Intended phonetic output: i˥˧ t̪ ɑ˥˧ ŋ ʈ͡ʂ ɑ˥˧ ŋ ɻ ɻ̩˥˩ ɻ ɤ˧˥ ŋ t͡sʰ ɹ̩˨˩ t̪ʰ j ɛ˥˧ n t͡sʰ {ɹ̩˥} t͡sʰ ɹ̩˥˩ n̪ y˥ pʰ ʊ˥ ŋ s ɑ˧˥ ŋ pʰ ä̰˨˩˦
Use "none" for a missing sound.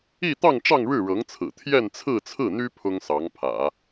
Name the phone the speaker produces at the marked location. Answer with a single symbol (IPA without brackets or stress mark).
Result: ɹ̩˥˧